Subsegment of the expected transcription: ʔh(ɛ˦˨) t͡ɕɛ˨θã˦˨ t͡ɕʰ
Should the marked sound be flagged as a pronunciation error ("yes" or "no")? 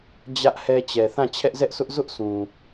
yes